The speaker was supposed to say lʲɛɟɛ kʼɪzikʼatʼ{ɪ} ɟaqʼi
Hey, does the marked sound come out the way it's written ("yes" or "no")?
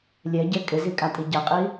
no